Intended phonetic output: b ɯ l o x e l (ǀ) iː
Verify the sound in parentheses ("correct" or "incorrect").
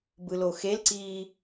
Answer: correct